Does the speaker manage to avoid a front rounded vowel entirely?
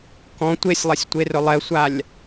yes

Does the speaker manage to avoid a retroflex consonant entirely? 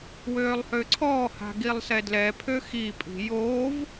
yes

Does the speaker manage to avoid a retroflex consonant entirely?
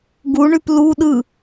no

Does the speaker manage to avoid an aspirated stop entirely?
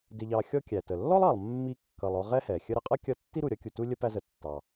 yes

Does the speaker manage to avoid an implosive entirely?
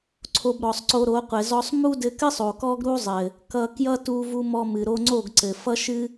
yes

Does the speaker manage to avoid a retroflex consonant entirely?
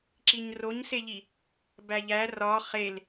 yes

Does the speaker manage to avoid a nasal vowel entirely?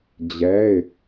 yes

